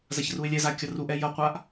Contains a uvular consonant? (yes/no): yes